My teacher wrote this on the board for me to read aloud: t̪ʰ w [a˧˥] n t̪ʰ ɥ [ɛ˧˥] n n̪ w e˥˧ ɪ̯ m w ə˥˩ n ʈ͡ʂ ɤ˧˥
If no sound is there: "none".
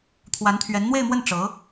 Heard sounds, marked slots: a˧˥, ɛ˧˥

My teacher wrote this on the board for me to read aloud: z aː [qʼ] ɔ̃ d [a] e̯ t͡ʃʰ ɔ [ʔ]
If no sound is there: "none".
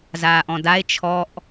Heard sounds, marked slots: ʔ, a, ʔ

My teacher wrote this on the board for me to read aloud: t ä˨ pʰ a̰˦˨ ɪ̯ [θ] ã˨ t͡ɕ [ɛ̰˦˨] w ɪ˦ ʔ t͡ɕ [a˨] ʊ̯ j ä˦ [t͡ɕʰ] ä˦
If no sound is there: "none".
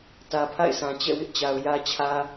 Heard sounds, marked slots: s, ɛ̰˦˨, a˨, t͡ɕʰ

